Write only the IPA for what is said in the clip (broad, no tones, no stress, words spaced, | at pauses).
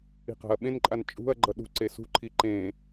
i̤qa̤ɐ̯ɓẽnǃʼan t͡ʃʼṳɐ̯ɡ͡ǃʌ ɗṳǀe sṳǃʰi ǃẽ